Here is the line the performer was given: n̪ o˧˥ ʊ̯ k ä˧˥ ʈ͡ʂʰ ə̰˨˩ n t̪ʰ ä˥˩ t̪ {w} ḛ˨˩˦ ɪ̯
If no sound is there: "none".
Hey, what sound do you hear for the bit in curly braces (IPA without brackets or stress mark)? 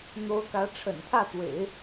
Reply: w